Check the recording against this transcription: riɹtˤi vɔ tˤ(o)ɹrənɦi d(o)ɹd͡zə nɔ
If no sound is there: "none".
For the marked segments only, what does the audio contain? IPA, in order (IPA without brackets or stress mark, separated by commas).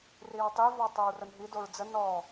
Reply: o, o